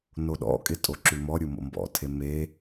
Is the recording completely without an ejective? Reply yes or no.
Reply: no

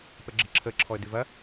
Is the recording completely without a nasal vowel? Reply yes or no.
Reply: yes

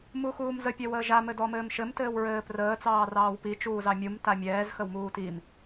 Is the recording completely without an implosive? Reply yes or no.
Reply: yes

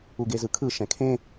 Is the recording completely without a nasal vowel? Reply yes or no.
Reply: no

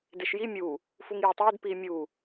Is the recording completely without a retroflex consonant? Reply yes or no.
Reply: yes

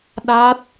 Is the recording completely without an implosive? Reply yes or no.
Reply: no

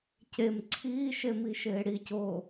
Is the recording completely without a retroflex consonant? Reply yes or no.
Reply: no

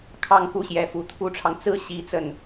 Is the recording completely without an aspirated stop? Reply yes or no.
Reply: no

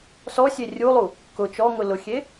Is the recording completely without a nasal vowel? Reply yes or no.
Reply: yes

